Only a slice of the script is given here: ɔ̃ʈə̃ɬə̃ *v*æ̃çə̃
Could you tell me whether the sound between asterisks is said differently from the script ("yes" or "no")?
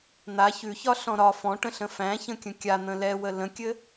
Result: yes